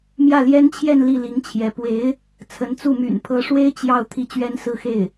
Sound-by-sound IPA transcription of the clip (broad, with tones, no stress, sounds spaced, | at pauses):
m j ä˥˩ l j ɛ˥ n t͡ɕʰ j ɛ˥˧ n l i˥˩ l i˧˥ ŋ t͡ɕʰ j ɛ˧˥ p w e˧˥ ɪ̯ | t͡sʰ ə˧˥ n t͡s u˥˩ m y̰˨˩ n pʰ ɤ˧˥ ʂ w e˥ ɪ̯ t͡ɕ j ɑ˥˧ ʊ̯ t̪ʰ i˥˩ t͡ɕ ɥ ɛ˥ n s ɹ̩˥˧ x e˥˩ ɪ̯